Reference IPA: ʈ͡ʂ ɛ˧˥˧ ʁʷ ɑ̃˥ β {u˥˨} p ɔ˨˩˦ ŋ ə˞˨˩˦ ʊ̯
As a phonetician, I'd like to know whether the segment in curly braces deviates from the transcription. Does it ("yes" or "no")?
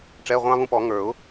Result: yes